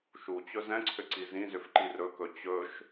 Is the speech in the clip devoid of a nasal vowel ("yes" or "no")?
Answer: no